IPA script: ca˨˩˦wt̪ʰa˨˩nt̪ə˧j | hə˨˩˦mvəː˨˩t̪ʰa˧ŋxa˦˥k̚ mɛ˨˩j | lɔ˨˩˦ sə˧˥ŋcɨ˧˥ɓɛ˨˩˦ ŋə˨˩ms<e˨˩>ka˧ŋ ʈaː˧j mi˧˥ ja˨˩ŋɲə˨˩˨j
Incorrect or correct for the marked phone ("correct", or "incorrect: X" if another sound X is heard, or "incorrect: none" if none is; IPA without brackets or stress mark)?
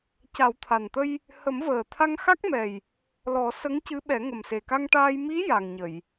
correct